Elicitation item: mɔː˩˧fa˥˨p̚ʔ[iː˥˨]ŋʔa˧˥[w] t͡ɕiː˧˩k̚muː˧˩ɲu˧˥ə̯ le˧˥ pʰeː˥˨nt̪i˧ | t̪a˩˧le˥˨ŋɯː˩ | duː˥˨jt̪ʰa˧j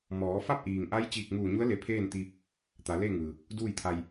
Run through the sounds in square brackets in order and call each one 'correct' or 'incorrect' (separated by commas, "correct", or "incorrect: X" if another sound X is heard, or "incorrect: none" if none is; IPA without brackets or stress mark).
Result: incorrect: iː˩, incorrect: j